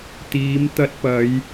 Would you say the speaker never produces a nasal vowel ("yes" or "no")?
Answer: yes